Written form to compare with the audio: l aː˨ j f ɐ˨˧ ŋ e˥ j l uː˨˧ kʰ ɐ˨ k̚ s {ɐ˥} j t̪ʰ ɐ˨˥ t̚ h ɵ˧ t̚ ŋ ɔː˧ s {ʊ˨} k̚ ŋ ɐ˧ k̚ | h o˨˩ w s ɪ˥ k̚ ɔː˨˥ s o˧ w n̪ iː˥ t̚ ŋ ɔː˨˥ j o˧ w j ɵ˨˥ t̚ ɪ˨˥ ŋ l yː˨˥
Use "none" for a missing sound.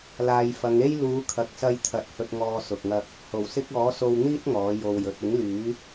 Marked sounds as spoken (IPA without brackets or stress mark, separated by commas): ɐ˧, ʊ˨